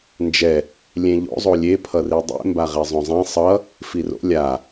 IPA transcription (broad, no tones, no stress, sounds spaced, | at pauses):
n d͡ʒ ɛ | lʲ ẽ ʎ o̰ zˤ o lʲ e pʰ ʌ r i dˤ ḛ m b a ʁ e zˤ õ zˤ ɛ̃ sˤ ʌ | f i r o̰ lʲ a